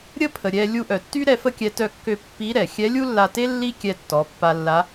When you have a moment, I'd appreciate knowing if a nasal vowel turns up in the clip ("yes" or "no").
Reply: no